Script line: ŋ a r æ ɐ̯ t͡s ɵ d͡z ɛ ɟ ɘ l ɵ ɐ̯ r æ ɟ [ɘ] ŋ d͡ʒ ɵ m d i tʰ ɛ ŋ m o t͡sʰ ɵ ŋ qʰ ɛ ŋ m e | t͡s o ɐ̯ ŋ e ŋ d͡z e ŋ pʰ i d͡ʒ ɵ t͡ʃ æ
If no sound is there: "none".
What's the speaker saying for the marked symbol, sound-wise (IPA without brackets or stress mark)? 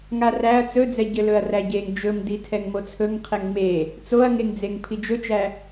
e